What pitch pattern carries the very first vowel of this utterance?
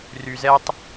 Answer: high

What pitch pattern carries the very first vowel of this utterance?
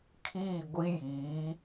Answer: falling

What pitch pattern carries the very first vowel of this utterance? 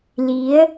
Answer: rising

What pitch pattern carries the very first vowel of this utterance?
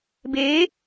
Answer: rising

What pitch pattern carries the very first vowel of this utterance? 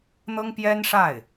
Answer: high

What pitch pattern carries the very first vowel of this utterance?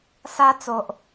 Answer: high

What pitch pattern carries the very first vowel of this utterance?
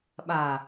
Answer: low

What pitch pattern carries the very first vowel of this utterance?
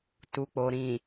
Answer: low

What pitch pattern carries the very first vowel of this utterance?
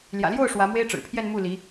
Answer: low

